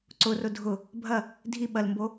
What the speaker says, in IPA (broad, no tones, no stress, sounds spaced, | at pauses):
ǀ ʊ r ʊ dʱ ʊ | bʱ ɐ | dʱ i ɓ ɐ l m b o